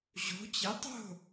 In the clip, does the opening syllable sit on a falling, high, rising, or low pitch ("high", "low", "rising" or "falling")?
rising